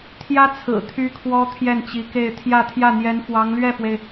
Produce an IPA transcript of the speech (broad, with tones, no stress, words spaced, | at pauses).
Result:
t̪ʰjä˥t͡sʰɹ̩˨˩ t̪ʰy˥kʰwɔ˥ t̪ʰjɛ˥˩nt͡ɕi˧˥ke˥˧ɪ̯ t̪ʰjä˥˧t̪ʰjä˥˩n̪jɛ˧˥n fwɑ˧˥ŋlɥɛ˥˩fwe˩ɪ̯